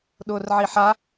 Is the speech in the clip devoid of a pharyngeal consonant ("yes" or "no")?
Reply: no